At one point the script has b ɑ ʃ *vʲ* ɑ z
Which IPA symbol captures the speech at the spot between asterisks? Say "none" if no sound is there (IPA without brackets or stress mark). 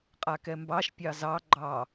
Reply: pʲ